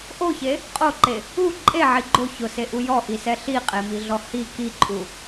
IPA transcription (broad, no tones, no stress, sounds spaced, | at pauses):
ʔ o ç e | qʼ o ǃ e | u ǃʼ e ʕ i ɡ͡ǃ o ç ʊ s e ʔ u j ɔ ʔ i s ɛ ɬ i qʼ e m i ɮ ɔ h i k i ǃʼ u